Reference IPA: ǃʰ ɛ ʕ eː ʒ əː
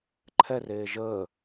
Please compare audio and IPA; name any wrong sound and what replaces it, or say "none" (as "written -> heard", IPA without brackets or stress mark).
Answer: ʕ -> r